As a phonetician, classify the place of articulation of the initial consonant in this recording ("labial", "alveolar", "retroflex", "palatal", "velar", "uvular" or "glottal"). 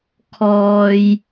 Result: velar